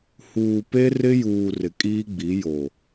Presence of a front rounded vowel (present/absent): absent